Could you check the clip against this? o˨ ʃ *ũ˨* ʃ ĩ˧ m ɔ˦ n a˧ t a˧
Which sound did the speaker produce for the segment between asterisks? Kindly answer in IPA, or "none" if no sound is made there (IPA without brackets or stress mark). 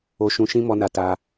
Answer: ũ˨